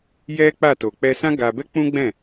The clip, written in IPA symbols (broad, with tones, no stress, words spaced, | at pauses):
jɛ˦ k͡pa˦˨to˨ k͡pɛ˧sã˦ ɡa˧ bɛ˦k͡pũ˦ɡ͡bɛ̃˦˨